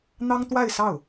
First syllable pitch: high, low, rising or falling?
high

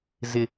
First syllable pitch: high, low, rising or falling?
high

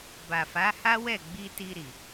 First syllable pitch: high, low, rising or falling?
low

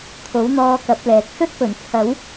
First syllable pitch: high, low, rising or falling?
rising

